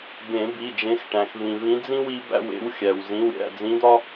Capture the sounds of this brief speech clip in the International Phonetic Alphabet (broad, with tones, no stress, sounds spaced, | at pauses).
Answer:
b ẽ˨˩˦ b i˩˧˩ d͡ʒ ẽ˨˦ x ʈ æ̃˩ x v ĩ˩ v ĩ˨˦ d͡z ĩ˦ w i˨˦ b æ̰˦˨ w ḛ˨˦ w xʲ æ˩ w z ĩ˩˧˩ w ɾʲ æ̰˩˧˩ d͡z ĩ˨˦ d̪ ɒ˦